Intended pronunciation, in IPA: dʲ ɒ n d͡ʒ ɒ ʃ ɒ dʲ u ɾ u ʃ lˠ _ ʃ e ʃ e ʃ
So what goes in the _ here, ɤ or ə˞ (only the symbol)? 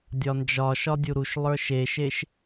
ə˞